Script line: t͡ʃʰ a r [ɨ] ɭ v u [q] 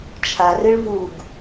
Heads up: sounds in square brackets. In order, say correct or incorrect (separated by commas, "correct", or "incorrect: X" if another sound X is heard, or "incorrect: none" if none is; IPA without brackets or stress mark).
correct, incorrect: ɡ